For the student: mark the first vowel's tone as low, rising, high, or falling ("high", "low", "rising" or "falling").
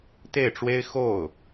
falling